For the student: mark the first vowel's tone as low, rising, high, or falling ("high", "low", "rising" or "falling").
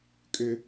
high